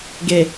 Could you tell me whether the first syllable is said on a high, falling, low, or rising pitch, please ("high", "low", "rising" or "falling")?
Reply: low